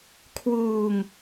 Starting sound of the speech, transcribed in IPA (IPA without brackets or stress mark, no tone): kʰ